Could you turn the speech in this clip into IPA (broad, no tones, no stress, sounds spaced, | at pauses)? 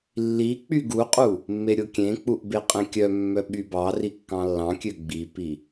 lː i k͡p y ɡ u qʼ u | mː e ɾʲ o kʲ ẽ k͡p u ʔ b e qʼ ẽ kʲ œ mː œ ɓ y b ɑ r i kː ɑ̃ lː ɑ̃ kʲ ø ɡ͡b i p i